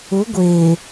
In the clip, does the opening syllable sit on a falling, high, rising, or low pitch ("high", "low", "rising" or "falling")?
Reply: rising